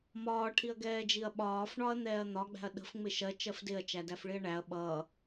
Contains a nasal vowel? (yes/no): no